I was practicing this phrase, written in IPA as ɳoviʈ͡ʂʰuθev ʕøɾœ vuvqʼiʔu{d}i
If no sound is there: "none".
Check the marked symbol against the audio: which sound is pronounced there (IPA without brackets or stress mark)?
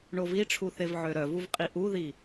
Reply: ð